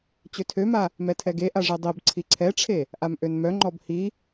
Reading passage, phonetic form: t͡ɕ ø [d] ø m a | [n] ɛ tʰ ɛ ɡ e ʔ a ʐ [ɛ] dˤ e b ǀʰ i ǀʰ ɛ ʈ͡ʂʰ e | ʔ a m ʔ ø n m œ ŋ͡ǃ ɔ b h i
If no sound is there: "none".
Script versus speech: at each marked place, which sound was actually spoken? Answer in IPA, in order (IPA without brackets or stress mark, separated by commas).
tʰ, m, ɛ